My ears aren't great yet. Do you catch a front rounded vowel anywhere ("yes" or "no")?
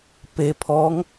no